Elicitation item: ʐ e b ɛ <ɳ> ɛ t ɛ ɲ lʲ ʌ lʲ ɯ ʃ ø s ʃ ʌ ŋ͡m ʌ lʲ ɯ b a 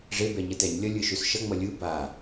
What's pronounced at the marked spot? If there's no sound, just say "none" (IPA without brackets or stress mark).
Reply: ɲ